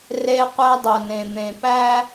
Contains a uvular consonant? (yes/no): yes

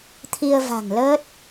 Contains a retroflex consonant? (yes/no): no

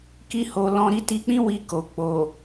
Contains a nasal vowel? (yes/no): yes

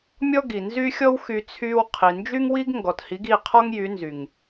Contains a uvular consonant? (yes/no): yes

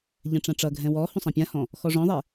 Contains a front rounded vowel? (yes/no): no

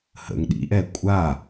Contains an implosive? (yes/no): yes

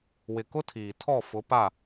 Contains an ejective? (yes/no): no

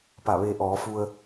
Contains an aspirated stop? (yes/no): no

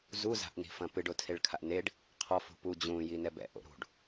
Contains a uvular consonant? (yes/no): yes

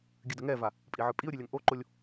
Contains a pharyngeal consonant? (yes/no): yes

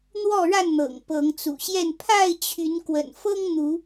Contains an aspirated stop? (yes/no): yes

